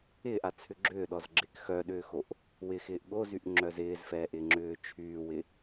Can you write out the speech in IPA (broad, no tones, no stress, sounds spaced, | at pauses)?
ɪː ʔ a t͡sʰ ʏ ɡ͡ǁ ʏː ɗ ɔ z ɡ͡ǁ ɪː k x œ ɗ ʏː x o ʔ | w ɪ x ɪː ʔ ɠ o z y ʔ ŋ͡ǁ œ z ɪː z f ɛː ʔ ɪː ŋ͡ǁ ʏː t͡ʃʰ yː w ɪ